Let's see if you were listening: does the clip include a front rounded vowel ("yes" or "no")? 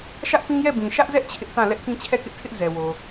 no